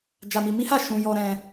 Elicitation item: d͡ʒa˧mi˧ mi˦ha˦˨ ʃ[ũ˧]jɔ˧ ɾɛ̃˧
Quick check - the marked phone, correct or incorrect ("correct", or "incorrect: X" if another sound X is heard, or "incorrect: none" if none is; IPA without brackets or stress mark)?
correct